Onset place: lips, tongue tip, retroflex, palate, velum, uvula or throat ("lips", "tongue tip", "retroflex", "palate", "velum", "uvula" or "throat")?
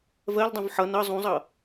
lips